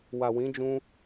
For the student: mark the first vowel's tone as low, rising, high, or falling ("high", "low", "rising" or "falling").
low